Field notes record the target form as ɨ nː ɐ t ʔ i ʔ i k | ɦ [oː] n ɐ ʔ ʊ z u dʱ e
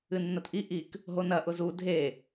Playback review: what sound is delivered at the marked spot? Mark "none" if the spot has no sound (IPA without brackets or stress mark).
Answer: o